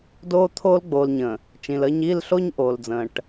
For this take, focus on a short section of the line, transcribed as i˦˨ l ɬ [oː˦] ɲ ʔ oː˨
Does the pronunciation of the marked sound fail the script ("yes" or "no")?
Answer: yes